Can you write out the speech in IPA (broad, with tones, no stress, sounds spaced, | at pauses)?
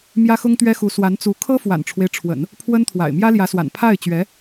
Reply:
m j ä˥ x ʊ˥ ŋ t̪ ɥ ɛ˥ x u˧˥ s w a˧˥ n t͡s u˧˥ kʰ ɤ˥ f w a̰˨˩ n ʈ͡ʂʰ w e˦ ɪ̯ ʈ͡ʂʰ w ə̰˨˩˦ n | pʰ w ə˥ n t̪ʰ w a̰˨˩ ɪ̯ m j ä˥ l j ä˧˥ s w a̰˨˩ n pʰ a˥˩ ɪ̯ t͡ɕ ɥ ɛ˧˥